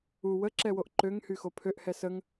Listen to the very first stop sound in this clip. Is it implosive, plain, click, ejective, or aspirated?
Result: click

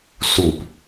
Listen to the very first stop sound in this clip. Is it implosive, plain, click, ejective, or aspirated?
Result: plain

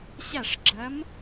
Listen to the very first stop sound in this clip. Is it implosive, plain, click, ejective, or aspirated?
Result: click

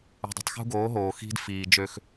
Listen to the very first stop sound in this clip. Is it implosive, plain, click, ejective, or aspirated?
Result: plain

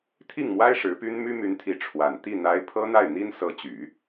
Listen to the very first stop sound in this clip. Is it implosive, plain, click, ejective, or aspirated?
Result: aspirated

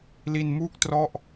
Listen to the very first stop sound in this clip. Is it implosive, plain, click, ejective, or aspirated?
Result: plain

